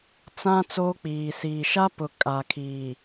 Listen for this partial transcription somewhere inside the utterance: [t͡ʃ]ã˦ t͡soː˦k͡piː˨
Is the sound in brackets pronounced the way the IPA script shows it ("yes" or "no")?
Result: no